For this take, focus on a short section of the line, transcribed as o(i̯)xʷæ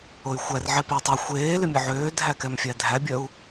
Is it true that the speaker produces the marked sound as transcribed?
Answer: no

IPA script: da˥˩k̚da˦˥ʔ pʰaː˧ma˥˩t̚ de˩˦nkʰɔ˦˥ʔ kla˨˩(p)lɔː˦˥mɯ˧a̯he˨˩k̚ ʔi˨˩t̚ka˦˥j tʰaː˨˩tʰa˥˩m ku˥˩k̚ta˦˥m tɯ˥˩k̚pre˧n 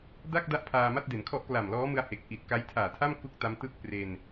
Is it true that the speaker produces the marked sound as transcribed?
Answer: no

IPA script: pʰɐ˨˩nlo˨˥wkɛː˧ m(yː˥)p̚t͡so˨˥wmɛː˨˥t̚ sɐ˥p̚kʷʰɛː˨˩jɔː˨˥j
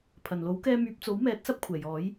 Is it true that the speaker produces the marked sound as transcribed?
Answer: no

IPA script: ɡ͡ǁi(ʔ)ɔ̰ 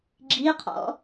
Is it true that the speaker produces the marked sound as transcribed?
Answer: no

